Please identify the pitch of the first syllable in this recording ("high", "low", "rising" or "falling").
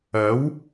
rising